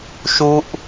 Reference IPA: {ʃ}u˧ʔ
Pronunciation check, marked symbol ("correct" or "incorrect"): correct